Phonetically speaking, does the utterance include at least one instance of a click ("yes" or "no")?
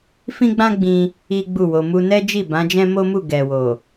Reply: no